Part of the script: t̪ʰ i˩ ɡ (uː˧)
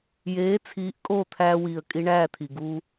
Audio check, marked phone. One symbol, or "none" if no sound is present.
uː˧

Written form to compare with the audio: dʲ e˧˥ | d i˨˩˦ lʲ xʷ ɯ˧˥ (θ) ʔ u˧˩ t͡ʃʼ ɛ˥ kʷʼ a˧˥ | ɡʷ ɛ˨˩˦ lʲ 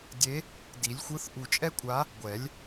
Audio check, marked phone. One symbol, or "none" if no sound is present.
θ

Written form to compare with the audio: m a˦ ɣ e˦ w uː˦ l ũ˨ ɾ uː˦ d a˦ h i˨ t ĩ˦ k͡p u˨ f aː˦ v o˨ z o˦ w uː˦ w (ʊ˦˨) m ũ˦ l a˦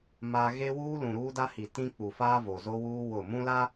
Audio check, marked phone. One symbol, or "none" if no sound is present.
ʊ˦˨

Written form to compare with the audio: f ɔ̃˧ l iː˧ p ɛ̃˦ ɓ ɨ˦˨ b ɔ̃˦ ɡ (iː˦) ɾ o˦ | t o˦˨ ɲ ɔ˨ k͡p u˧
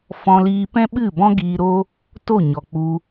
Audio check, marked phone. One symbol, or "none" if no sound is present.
iː˧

